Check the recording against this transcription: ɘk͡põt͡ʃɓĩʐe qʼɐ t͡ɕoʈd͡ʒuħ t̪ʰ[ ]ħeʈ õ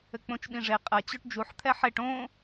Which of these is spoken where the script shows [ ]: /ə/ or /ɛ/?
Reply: ɛ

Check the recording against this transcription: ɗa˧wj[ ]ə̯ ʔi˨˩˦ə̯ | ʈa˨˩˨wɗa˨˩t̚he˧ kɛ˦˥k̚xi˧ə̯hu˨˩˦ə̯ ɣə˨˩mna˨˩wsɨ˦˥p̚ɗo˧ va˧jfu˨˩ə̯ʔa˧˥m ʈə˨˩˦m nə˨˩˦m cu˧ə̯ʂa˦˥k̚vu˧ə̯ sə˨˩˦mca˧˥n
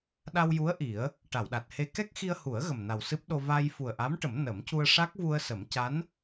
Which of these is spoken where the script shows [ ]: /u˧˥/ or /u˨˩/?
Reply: u˧˥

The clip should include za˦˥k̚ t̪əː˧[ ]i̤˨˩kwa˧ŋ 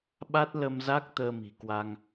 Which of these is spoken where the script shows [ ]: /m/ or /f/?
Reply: m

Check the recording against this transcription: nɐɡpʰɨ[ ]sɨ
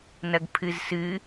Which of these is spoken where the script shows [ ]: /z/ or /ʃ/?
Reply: z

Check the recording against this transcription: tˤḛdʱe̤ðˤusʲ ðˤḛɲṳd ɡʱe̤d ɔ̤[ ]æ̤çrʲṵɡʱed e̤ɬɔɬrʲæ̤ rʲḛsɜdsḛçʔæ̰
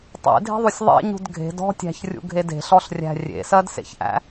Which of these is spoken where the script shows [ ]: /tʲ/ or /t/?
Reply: tʲ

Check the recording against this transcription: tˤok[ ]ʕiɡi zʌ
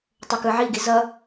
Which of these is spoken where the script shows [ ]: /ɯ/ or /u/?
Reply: ɯ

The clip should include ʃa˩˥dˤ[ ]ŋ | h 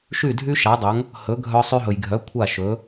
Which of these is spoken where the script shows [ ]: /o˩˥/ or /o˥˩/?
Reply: o˩˥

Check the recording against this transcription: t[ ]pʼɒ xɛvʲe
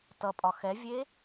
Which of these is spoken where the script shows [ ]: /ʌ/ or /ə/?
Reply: ʌ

